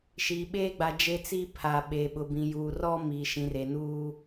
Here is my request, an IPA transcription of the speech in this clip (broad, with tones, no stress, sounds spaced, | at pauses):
ʃ i˨ ɓ eː˦ ɡ͡b a˨ d͡ʒ e˦ t͡s i˦ pʰ a˨ ɓ e˨ ɓ ʊ˨ b ĩ˨ j uː˨ r ɔ˦ m iː˨ ʃ ĩ˨ r e˨ n uː˦